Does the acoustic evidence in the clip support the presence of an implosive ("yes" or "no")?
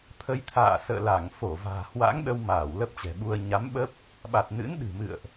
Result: yes